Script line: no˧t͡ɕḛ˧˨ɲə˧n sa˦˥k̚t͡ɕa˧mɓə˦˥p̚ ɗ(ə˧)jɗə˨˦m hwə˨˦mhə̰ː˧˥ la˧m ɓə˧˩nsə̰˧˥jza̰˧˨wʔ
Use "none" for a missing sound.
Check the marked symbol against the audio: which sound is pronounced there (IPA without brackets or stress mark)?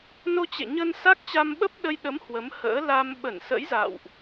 ə˧